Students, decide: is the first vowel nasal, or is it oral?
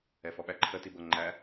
oral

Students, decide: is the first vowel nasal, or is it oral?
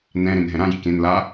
nasal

